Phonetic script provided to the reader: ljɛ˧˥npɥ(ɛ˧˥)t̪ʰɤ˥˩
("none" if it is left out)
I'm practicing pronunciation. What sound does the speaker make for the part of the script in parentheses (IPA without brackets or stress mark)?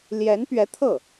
ɛ˧˥